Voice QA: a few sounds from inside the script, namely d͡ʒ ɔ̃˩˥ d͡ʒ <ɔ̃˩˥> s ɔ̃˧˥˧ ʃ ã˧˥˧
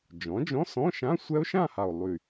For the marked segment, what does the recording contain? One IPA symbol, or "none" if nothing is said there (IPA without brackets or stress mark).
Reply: ɔ̃˧˥˧